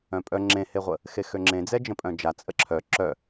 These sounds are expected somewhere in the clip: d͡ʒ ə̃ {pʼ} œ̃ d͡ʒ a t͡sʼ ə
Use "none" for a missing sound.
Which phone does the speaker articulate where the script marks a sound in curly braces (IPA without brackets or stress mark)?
pʼ